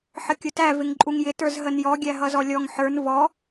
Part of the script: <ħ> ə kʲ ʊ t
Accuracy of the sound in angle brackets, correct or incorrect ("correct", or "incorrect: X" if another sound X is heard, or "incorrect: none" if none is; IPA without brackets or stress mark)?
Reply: correct